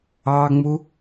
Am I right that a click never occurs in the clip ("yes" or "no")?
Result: yes